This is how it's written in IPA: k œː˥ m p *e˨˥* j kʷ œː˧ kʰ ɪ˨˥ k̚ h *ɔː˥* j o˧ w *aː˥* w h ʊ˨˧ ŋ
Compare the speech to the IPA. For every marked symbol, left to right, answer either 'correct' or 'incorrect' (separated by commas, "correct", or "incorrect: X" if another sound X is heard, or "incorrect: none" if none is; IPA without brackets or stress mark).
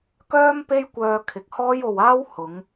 incorrect: e˥, correct, correct